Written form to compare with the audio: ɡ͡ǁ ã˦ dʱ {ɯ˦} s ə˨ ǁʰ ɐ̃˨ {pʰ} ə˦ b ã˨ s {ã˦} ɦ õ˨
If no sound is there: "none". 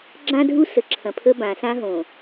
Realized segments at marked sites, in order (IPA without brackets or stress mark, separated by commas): u˦, pʰ, ã˦